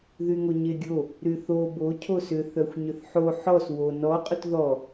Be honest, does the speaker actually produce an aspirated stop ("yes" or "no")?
yes